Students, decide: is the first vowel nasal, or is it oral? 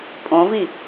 nasal